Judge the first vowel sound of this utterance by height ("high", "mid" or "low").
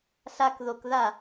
low